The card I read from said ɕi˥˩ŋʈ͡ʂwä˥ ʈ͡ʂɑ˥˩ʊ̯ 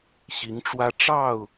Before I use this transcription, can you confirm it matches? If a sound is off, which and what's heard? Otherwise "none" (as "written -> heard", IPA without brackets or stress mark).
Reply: i˥˩ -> i˧˥